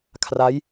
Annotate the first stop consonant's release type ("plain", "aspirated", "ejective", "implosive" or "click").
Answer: aspirated